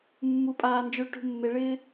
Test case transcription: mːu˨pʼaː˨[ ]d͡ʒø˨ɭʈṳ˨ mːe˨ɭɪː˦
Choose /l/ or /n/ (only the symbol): n